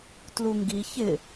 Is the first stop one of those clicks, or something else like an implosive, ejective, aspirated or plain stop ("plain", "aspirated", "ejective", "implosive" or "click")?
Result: plain